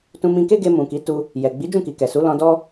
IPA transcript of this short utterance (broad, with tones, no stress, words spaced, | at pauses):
tũ˧mĩ˧ke˦ɡe˧ mũ˨ki˨˦ tu˦ | jɛ˨ɡ͡bi˨˦ d͡ʒũ˦˨ki˨ kɛ˨su˨˦lɔ̃˧dɔ˦